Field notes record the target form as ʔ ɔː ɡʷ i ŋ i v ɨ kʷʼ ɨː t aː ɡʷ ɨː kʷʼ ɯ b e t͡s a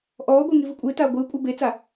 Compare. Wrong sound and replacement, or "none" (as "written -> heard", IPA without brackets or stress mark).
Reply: none